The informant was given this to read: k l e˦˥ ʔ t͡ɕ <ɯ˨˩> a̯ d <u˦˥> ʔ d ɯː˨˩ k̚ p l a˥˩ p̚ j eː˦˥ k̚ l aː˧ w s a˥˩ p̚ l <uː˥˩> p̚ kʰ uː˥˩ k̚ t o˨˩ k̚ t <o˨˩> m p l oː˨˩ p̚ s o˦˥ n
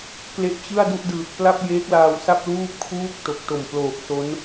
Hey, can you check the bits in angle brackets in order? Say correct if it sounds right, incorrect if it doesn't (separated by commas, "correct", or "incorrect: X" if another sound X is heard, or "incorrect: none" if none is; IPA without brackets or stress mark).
incorrect: ɯ˥˩, incorrect: u˥˩, correct, correct